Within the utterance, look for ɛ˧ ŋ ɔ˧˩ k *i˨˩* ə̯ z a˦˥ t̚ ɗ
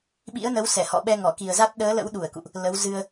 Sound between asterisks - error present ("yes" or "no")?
no